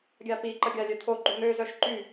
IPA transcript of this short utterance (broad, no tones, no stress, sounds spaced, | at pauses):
ɡʲ a p i ǃ ə ɡʲ a lʲ œ t̪ʰ o ɡ͡ǃ u n̪ ø z œ ʃ ǃ y